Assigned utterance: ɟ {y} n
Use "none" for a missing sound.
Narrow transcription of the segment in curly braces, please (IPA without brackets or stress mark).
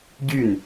y